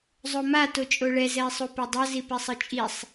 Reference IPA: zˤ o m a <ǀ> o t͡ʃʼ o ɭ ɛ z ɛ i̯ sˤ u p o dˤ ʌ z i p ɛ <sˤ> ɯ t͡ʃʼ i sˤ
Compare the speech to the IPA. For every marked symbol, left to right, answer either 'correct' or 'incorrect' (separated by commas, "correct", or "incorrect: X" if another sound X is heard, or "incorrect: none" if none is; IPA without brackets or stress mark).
incorrect: t, correct